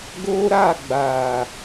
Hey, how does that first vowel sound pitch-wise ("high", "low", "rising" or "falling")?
high